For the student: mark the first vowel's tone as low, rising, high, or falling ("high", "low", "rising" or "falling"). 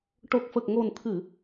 low